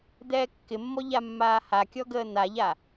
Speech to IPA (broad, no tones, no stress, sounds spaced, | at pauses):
d̪ ɛː kː ɪ mː ɔ ʎ a mː aː h a kʲ ɔ ɡ əː n̪ a ʎ a